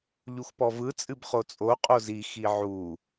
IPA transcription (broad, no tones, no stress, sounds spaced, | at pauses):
ʎ u x p ɔ v ɯ t͡sʼ ɨ b χ o t͡sʼ o qʼ o z i x i ʕ u